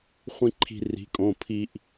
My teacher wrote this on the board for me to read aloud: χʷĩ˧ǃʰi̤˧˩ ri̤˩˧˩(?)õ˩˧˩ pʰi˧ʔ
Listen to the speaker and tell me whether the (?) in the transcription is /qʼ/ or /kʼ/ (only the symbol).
kʼ